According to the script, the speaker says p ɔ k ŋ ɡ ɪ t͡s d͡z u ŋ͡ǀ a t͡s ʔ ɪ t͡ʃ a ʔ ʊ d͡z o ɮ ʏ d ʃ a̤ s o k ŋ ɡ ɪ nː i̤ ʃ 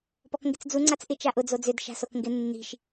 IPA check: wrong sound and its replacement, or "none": ɮ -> d͡z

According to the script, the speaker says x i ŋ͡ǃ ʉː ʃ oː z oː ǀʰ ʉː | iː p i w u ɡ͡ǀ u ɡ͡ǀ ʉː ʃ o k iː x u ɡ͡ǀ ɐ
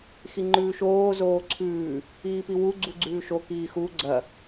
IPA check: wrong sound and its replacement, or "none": none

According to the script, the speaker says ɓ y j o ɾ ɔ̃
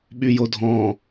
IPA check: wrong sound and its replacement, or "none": ɾ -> dʱ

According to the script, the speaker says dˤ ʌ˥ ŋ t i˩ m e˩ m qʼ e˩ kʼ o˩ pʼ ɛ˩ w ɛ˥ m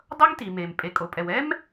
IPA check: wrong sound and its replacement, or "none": qʼ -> pʼ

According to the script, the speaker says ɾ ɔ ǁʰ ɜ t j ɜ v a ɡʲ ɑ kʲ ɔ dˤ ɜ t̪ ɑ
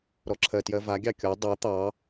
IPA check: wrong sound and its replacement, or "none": none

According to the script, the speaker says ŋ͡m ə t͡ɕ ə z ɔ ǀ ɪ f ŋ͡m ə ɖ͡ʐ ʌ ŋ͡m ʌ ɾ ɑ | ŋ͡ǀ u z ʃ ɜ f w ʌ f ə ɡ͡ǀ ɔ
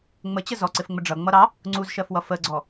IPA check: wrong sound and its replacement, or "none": none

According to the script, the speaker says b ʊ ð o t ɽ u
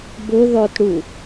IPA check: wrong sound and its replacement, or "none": o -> ɔ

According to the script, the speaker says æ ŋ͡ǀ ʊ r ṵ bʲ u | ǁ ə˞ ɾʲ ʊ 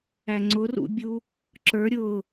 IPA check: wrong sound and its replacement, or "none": none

